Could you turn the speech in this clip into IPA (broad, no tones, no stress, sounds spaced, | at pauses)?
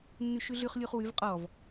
nː ʉ ʃ ʉ ɮ ʉ χ lʲ u χ w ʉ v qʼ ɔ v